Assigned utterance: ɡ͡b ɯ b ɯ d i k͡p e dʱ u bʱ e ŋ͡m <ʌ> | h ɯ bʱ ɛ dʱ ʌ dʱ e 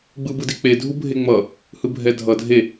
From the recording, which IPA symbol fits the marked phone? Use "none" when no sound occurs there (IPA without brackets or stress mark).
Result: ʌ